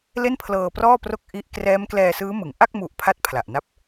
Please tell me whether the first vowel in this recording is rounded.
no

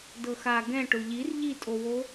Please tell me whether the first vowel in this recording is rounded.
no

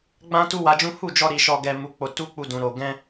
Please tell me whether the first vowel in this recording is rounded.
no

